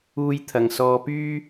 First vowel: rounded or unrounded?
rounded